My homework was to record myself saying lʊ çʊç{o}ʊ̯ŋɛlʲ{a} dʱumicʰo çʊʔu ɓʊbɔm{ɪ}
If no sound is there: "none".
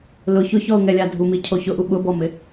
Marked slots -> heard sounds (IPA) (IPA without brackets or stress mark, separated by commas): ɔ, a, ɪ